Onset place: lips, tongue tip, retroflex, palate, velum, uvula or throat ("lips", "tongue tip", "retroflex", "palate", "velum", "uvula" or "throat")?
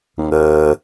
velum